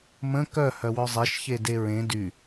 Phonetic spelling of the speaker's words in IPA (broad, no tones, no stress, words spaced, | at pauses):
mə̃ kœ hœwœzˤeʃ çedeɹẽ dy